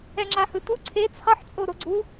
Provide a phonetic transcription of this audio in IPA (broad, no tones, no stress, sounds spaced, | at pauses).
ɛ ŋ͡ǁ a h ɯ t u ǀʰ e t͡s χ ʌ ħ t͡sʼ o ɾ o ɡ͡ǀ u